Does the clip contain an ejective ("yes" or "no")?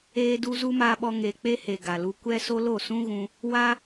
no